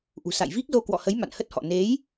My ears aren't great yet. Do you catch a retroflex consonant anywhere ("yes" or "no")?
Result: no